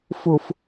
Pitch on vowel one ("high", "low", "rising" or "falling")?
low